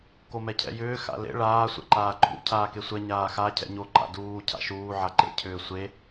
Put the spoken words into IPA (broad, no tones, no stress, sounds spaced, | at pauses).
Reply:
k o m ɛ cʰ ɛ̰ j ʏː x a̰ l ḛ ɭ aː sʷ ɛ̰ ǃ aː ǃʰ ṵ cʰ aː k e sʷ ɛ ɲ aː x a cʰ ɛ̰ ɲ o ǃ a̰ d uː cʰ a̰ ʃ uː ʕ a ǃ ḛ cʰ ʏː sʷ e